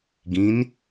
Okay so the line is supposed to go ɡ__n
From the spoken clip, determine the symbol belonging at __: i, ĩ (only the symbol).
ĩ